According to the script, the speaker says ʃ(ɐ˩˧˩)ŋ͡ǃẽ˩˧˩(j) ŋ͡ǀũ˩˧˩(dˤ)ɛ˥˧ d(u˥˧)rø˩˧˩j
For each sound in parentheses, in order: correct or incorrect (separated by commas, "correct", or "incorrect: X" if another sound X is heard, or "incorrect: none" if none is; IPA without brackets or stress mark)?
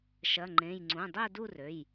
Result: correct, correct, correct, correct